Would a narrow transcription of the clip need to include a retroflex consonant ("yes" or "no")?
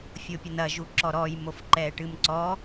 yes